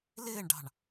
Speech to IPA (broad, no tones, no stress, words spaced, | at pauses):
lɪːɳɖɑ̤ɳ